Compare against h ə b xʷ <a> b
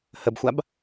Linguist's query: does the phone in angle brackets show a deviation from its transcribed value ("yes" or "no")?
no